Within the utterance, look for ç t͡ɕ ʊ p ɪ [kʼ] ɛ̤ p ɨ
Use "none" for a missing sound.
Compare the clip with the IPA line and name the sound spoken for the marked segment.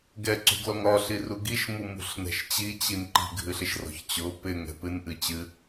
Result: ŋ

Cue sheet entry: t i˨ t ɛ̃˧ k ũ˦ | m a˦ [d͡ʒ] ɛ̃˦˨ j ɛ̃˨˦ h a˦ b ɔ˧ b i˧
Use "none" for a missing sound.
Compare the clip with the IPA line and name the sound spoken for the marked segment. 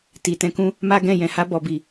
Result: ɡ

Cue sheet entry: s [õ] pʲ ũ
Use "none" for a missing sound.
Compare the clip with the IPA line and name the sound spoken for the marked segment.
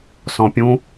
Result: ɔ̃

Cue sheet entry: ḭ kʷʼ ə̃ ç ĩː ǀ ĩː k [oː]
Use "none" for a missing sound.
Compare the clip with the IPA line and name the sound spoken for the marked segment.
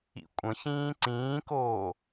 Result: oː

